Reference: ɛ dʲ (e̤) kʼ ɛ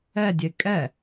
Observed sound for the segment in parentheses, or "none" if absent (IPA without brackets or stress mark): e